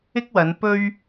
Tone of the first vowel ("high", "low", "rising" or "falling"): high